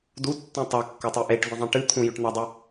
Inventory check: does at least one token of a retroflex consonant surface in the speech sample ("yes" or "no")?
yes